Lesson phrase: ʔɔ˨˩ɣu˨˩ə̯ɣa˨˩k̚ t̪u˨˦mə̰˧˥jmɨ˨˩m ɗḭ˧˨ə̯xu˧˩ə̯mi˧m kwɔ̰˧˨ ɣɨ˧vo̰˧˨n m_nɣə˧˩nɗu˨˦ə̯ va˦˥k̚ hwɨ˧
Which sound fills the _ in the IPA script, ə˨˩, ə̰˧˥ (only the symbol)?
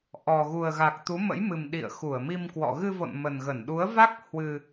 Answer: ə˨˩